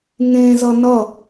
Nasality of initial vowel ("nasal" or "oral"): nasal